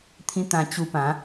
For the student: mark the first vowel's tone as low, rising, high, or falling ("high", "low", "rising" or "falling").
high